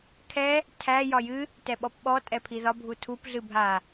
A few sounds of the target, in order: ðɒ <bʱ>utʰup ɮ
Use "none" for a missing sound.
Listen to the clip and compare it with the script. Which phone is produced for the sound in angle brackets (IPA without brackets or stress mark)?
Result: bʱ